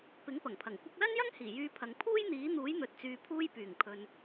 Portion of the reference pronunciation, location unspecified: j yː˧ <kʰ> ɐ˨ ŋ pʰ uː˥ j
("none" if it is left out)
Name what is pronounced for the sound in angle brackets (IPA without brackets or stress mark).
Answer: pʰ